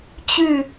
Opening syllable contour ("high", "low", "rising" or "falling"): falling